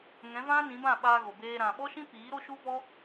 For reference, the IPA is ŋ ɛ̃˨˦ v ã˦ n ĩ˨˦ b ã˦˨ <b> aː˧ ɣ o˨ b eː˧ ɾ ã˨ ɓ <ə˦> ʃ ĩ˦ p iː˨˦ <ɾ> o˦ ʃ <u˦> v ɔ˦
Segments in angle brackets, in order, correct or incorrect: incorrect: ɓ, incorrect: ɔ˦, correct, correct

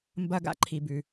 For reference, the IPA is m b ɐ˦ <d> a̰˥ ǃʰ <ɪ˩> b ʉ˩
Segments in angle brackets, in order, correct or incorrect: incorrect: ɡ, incorrect: i˩

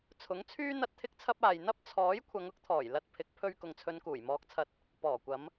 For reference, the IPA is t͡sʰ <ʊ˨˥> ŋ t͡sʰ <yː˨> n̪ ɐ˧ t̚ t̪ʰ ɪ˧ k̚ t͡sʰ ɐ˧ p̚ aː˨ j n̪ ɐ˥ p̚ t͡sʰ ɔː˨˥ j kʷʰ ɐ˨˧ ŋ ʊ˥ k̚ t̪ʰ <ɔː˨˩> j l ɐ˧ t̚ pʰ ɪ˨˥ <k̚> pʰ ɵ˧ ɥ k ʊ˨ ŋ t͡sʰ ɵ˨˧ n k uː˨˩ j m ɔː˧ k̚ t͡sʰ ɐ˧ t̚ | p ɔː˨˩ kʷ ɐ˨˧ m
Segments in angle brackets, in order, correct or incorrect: correct, incorrect: yː˥, correct, correct

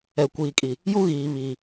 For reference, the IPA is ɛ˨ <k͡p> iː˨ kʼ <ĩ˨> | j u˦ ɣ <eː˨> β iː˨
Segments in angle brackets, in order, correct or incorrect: incorrect: kʷ, incorrect: i˨, incorrect: iː˨

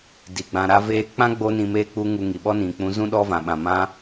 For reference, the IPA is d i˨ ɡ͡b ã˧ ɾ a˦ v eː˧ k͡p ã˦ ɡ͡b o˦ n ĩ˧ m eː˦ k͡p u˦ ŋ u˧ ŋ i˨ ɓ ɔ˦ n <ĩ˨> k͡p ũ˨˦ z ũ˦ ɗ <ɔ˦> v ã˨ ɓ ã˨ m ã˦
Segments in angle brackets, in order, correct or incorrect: correct, correct

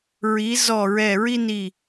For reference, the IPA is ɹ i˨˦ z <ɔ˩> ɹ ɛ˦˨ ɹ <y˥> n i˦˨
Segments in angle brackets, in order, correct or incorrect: incorrect: ɔ˦˨, incorrect: i˥

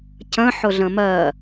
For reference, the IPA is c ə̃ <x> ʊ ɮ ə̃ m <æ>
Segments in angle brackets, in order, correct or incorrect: incorrect: ħ, incorrect: ɜ

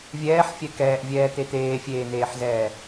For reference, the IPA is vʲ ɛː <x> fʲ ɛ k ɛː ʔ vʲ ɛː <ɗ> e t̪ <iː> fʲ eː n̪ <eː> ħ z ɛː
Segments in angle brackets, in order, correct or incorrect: incorrect: ħ, incorrect: t̪, incorrect: eː, correct

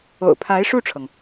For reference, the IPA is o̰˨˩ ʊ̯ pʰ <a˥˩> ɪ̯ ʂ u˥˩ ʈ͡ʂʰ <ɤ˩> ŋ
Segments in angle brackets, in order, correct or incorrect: incorrect: a˧˥, correct

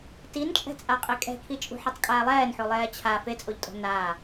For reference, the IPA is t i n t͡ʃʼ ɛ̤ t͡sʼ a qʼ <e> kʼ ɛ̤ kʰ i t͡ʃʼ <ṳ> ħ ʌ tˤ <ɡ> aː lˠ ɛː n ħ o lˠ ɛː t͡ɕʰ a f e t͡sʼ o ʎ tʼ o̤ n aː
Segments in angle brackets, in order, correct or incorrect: correct, correct, incorrect: kʼ

